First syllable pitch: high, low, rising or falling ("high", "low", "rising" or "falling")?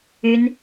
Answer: high